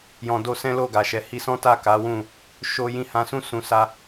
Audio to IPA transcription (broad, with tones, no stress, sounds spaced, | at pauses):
j ɔ̃˨ d o˧ s ɛ̃˦ l o˦˨ ɡ a˨ ʃ ɛ˨ h i˧ s ɔ̃˦ t a˦˨ k a˨˦ w ũ˦˨ | ʃ o˧ j ĩ˧ h ã˨ s ũ˧ s ũ˨ s a˧